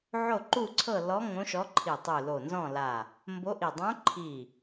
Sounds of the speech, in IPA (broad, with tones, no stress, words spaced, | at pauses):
ʕo˥˨ǃu˥˨ǀʰɤ˥˨ lɔ˧˥ ŋõ˧˥ʃɔ˧˥ǃʰi˧˩ tˤu˧˩lo˧˩ nzɔ̃˥˨la˧˩ | mbo˧˥ʔi˧˩ dˤõ˧˥ǃʰi˧˩